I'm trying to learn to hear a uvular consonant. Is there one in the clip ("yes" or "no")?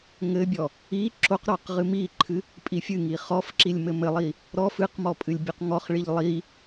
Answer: yes